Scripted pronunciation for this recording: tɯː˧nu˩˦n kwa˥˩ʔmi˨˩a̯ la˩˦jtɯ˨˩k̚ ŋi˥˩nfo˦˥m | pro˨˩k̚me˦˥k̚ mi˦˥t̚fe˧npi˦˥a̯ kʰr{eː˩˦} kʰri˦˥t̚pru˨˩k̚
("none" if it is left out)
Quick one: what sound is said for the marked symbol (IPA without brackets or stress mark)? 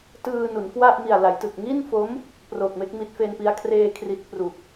eː˧